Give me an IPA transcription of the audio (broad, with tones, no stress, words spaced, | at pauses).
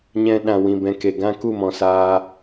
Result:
ɲɛ̃˧ ɗã˨wĩ˨bɛ̃˨ ke˨ɡã˦ ku˦˨mɔ̃˨saː˧